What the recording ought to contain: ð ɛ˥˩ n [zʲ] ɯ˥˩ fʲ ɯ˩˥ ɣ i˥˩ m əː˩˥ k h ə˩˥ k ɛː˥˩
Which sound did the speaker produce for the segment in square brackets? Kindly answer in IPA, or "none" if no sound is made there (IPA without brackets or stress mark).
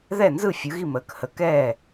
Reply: z